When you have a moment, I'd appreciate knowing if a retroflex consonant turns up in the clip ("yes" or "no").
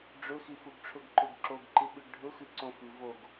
yes